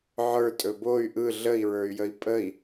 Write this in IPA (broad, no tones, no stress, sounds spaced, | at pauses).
ʕ ə˞ tʼ ɵ b o y̯ ʔ ɯ ɮ ə i̯ ɹ ə˞ y̯ j ə i̯ pʼ ə i̯